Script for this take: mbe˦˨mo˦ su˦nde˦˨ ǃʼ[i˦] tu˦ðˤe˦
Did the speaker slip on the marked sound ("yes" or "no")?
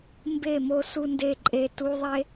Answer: yes